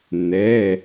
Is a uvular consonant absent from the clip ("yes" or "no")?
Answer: yes